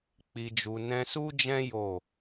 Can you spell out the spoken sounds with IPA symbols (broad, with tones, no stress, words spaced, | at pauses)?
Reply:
k͡pi˨d͡ʒu˨ nɛ̃˧su˦d͡ʒɛ̃˦ jo˦˨